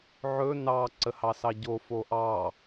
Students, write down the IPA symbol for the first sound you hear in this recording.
ʕ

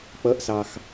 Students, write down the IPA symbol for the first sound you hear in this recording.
k͡p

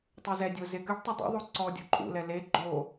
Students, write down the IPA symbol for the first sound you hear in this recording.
tˤ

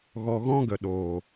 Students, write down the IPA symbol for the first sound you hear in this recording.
ɣ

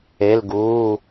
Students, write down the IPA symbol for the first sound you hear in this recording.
e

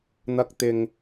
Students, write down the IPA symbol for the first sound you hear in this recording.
n̪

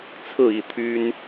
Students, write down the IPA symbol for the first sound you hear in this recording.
t͡sʰ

